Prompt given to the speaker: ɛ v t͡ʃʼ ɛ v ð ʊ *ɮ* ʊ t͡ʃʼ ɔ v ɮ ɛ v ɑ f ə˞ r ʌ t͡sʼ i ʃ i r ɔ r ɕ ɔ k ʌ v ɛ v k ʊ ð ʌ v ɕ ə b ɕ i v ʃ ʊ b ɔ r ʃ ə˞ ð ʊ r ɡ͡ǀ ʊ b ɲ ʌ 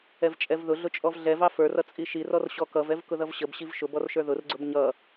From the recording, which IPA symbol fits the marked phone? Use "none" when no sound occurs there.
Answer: ɮ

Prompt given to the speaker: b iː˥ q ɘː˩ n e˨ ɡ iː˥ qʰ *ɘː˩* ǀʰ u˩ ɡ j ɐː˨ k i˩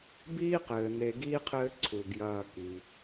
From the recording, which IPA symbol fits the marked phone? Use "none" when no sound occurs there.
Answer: ɘː˦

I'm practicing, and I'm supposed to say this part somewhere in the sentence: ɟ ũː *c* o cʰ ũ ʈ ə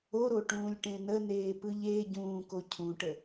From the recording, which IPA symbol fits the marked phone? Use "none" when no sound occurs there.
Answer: k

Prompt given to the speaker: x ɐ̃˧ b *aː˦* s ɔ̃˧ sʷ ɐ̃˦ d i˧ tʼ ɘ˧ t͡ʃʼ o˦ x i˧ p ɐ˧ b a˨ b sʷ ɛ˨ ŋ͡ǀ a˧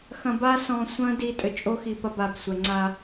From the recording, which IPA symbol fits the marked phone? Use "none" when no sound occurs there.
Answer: a˦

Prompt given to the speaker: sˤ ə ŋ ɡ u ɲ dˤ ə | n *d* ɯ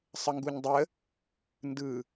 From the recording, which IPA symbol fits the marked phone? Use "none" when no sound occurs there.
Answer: d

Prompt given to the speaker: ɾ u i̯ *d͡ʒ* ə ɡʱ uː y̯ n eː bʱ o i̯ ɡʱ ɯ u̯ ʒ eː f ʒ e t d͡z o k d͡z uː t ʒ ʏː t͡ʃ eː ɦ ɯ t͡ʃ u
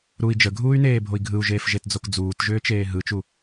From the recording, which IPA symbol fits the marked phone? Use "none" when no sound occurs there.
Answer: d͡ʒ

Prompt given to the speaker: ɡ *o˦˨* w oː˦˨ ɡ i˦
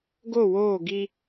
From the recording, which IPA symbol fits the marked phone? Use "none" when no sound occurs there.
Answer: o˦˨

